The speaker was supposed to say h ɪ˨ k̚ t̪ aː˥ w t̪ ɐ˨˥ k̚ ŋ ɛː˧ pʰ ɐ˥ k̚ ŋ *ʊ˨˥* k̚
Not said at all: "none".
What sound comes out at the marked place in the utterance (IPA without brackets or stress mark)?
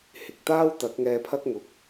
ʊ˨